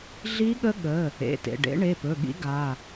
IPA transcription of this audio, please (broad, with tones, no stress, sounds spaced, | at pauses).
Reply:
ɮ i˦˥ ɠ ə˦˥ ɠ ə˩˧˩ | ḛ˩˧˩ t ḛ˩˧˩ ɖ ḛ˦˥ ɳ e˩˧˩ p ɵ˩˧˩ ɠ ḭ˦˥ ɡ a˩˧˩